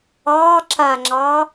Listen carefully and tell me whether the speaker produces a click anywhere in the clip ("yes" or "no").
yes